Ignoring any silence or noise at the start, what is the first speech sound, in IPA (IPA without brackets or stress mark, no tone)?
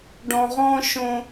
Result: ɖ